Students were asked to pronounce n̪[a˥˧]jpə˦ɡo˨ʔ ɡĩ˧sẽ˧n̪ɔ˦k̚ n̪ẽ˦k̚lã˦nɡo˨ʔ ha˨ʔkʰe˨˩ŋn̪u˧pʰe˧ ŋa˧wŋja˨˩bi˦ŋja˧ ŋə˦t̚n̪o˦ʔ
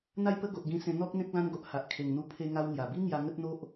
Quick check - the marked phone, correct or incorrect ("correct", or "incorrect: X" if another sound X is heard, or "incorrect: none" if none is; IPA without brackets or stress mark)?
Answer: correct